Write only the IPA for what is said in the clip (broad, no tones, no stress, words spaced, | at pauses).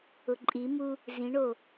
ʊǃʼimu | zĩɳo